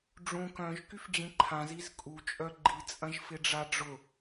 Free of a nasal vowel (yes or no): no